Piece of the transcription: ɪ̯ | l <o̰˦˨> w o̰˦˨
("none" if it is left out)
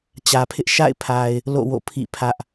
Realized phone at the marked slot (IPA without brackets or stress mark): o̰˦˨